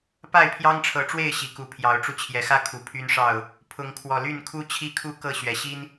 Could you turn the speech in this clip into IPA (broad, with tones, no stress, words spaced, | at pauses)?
pa˥˨ɪ̯pʰjɑ˦ŋʈ͡ʂʰɤ˨˦ʈ͡ʂwe˥˨ɪ̯ ɕi˨˩ku˨˦pʰjɑ˨˦ʊ̯ʈ͡ʂu˧ t͡ɕʰjɛ˨˦xä˦ kʰu˨˩ pʰy˦nʂɑ˥˨ʊ̯ | pʰʊ˨˦ŋkʰwɔ˨˩ly˥˨n kʰu˦ t͡ɕʰi˦kʰu˦kɤ˥˨ ɕɥɛ˨˩ɕi˦n